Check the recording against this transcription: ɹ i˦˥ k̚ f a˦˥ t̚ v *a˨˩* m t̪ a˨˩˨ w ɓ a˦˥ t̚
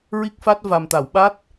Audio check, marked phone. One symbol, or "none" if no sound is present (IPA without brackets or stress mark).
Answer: a˨˩